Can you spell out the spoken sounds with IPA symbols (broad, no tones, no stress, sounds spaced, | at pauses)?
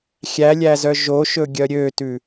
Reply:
xʲ æ lʲ æ z œ ʒ o ʃ ɵ ɡʲ œ ɾʲ ø t ʉ